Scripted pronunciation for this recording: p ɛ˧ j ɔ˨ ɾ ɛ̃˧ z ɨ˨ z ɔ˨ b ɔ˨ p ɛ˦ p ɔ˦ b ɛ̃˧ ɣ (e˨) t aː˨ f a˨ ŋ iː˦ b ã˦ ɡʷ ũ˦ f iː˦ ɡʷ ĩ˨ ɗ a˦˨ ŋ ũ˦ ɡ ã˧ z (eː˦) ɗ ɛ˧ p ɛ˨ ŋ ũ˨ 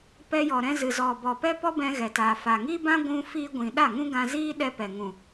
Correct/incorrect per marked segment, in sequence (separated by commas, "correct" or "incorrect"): incorrect, incorrect